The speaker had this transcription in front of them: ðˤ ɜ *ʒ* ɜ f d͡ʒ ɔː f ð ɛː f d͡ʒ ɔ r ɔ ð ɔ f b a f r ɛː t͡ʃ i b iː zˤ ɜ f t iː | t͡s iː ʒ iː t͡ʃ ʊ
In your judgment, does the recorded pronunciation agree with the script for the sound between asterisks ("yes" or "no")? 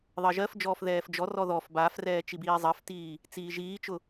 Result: yes